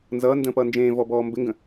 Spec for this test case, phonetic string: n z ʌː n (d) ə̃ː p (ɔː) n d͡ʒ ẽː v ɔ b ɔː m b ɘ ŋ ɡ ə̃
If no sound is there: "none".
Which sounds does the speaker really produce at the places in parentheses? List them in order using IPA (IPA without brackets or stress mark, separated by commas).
d, ʌː